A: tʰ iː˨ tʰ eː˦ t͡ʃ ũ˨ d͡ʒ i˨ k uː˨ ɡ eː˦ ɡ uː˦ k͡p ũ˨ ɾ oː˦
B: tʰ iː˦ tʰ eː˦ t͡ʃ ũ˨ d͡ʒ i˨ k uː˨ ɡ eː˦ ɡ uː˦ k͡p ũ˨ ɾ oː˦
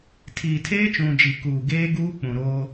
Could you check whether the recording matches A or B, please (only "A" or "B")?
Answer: A